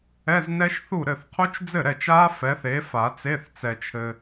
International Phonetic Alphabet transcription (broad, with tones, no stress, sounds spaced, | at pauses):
ɛ˧˥˧ z n ɛ˦˥ ʃ θ u˥˩ ɾ ɘ˥˩ θ qʰ u˦˥ t͡ʃ d͡z ɘ˥˩ ɾ ɛ˥˩ t͡ʃ a˦˥ f ɛ˨˥ θ e˨˥ f a˨˩˦ t͡s e˧˥˧ θ t͡s ɛ˨ t͡ʃʰ ɘ˨